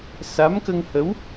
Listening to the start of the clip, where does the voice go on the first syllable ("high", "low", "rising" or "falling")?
rising